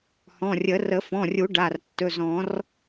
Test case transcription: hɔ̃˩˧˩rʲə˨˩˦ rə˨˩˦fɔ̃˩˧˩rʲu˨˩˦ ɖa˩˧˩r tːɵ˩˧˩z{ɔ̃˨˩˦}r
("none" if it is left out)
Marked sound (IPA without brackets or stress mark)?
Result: ɔ̃˨˩˦